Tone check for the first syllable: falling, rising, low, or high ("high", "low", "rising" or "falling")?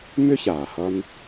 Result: high